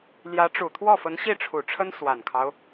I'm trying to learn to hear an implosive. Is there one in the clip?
no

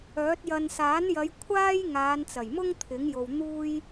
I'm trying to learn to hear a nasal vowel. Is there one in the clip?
no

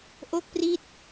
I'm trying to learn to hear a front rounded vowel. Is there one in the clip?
no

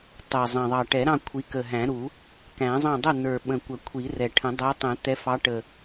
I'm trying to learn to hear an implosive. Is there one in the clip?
yes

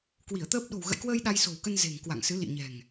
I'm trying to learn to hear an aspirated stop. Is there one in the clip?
no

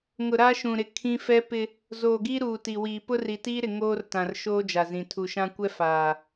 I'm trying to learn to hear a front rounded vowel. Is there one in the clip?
no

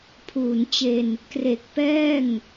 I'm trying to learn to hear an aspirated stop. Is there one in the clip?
yes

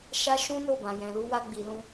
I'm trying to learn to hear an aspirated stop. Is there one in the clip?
no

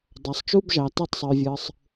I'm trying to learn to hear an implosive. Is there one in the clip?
no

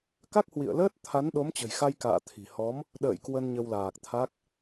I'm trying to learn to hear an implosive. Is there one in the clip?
yes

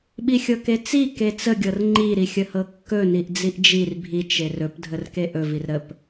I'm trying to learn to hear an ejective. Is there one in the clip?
no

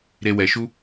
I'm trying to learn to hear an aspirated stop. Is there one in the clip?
no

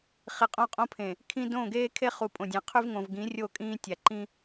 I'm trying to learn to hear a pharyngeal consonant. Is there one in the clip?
no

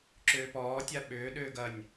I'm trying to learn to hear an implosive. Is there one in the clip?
yes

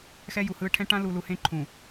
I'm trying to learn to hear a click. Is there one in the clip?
yes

